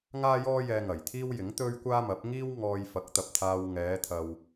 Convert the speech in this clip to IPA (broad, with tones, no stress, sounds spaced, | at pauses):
ŋ aː˥ j ɔː˥ j ɛː˧ ŋ ɐ˨˩ j t̪ʰ iː˥ w j ɪ˨˥ ŋ t̪ ɵ˥ ɥ kʷ aː˥ m ɐ˨˥ p̚ ŋ iː˥ w ŋ ɔː˧ j f ɐ˨˥ k̚ t̪ ɐ˨ p̚ t̪ʰ aː˧ w ŋ ɛː˨˧ t̪ʰ ɐ˨ w